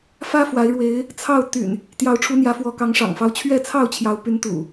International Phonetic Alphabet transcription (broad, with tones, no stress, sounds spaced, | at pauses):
f ä˦ f w a˨˦ ɪ̯ ɻ w e˨˦ ɪ̯ | t͡sʰ ɑ˥˨ ʊ̯ t̪ y̰˨˩ n | t̪ j ɑ˨˦ ʊ̯ ʈ͡ʂʰ u˨˦ n̪ j ä˨˦ f w ɔ˨˦ k ɑ˨˦ ŋ ʂ ɑ̰˨˩ ŋ f ɑ˦ ʊ̯ t͡ɕʰ ɥ ɛ˥˨ t͡sʰ ɑ˥˨ ʊ̯ t͡ɕʰ j ɑ˨˦ ʊ̯ p y˨˦ n t̪ ṵ˨˩